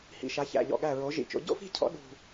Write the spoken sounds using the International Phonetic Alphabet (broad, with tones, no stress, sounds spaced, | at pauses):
h ḭ˧˩ ʃ a˩˥ ç æ̰˧˩ ʎ ɔ̰˧˩ ɠ æ˧˩ ɹ o˩˥ ʒ ḭ˧˩ t͡ʃ o̰˩˥ ɟ o̰˥˧ f i̤˥˧ cʰ ɔ̰˩˥ ɗ ṳ˧˩